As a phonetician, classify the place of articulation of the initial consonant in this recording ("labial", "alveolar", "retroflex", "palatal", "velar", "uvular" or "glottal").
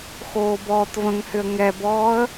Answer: velar